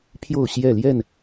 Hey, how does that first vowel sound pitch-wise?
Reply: falling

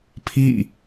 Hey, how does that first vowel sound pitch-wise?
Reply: falling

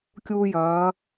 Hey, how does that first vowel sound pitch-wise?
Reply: high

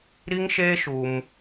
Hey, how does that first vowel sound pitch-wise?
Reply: high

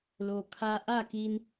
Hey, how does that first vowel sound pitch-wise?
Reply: low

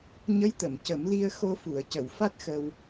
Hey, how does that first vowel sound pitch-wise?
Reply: rising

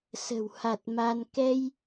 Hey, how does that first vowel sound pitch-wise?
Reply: low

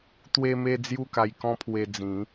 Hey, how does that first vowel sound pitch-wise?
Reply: high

